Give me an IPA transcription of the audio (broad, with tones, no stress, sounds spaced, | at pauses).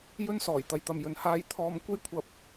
j ɵ˧ n s ɔː˨˩ j t̪ ɐ˨˧ j t̪ ɐ˨ m j ɵ˨ n h aː˧ j t̪ʰ ɔː˧ m kʷ e˥ j kʷʰ ɐ˧ p̚